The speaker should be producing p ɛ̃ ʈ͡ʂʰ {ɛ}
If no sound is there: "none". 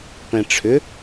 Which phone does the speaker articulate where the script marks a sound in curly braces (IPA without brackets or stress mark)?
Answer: ʏ